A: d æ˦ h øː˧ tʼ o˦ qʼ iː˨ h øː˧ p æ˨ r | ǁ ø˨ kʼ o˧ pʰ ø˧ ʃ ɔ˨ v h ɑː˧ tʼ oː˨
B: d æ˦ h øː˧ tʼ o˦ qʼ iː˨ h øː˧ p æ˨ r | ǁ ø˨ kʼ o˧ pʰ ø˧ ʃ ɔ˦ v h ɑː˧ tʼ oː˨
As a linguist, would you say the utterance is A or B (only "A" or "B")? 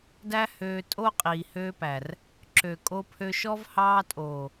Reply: B